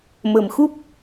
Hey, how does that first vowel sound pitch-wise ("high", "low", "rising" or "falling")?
low